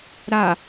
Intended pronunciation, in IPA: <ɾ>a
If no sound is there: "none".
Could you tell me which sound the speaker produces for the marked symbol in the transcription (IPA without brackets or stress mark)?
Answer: ɾ